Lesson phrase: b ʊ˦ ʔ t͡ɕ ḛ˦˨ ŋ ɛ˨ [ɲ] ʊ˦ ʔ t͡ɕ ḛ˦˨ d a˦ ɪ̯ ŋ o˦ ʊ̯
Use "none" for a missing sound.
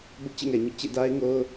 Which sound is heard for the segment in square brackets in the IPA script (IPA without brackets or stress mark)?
ɲ